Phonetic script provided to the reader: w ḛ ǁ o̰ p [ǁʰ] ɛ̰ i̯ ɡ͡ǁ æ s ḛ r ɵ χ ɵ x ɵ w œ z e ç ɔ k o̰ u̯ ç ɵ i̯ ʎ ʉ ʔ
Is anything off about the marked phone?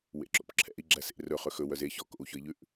no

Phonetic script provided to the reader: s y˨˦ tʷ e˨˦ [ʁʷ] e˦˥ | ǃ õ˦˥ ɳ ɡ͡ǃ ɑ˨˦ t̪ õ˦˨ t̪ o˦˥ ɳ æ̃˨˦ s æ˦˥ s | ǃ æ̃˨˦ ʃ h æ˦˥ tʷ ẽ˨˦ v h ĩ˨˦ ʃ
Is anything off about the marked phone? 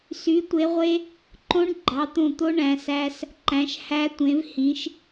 no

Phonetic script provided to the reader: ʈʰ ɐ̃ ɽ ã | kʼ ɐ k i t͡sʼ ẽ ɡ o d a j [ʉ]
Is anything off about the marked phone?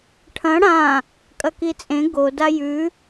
no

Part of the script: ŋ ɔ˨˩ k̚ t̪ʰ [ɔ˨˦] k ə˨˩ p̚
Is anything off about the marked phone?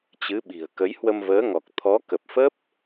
no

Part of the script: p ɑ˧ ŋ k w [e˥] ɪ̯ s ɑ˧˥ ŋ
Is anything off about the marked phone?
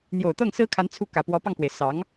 yes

